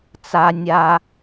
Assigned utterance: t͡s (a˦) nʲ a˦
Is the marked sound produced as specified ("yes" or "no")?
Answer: yes